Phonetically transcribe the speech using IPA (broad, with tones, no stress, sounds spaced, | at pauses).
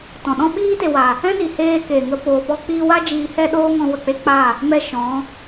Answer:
t ɔ̃˨ ɗ ɔ̃˦ ɓ iː˦ t e˨ w a˨ | ɛ̃˦ n i˨ h eː˧ k e˨ ŋ ə˧ p oː˨ p ɔ˧ k͡p iː˧ w a˦ d͡ʒ iː˧ h ɛ˦ ɗ oː˦ ŋ ɔ̃˧ w ə˨ k͡p e˦ k͡p a˦˨ | m ɛ˧ ʃ ɔ̃˨˦